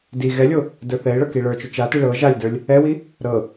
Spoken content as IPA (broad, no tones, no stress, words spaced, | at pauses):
di ɣɛlʲo | də˞θɛɪ̯ɭɤ kiɭə˞t͡ʃo t͡ʃati ɭɤ ʒalʲdə˞lʲ | ɛwi | ɾɤ